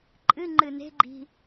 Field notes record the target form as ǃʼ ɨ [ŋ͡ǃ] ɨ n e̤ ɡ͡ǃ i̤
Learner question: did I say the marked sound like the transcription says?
yes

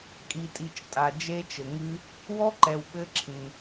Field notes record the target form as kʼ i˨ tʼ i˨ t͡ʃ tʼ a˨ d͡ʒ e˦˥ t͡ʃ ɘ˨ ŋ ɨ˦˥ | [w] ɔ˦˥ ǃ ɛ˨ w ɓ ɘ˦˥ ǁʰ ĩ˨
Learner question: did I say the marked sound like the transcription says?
yes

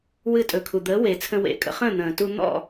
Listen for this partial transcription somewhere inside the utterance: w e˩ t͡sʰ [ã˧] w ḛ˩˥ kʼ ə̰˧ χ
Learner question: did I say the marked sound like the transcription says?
no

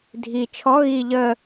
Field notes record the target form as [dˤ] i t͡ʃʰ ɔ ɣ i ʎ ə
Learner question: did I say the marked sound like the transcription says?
no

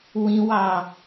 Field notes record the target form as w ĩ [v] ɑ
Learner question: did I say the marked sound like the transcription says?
no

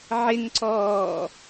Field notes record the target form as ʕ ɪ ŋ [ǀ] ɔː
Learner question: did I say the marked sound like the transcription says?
yes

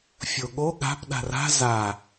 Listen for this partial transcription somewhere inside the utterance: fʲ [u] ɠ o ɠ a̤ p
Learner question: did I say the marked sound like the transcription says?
no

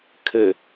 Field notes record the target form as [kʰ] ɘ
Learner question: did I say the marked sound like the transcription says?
yes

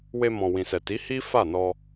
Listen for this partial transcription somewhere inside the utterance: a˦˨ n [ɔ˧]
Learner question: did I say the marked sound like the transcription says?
yes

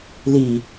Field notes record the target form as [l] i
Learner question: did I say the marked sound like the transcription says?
yes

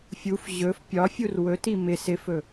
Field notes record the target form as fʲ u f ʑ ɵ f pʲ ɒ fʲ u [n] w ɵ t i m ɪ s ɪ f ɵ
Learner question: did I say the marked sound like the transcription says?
no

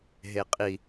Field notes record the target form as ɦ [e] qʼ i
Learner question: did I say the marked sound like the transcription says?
yes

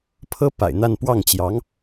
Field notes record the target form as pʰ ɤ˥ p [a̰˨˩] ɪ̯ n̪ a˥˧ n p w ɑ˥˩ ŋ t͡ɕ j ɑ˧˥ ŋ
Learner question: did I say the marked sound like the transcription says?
yes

